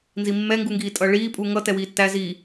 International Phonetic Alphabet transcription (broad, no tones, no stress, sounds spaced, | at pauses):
n z i mː ɛ ŋ ɡ u ŋ ɡ iː tʼ ʌ ɭ iː pʼ u ŋ ʌ t ɛ w iː tː æ z i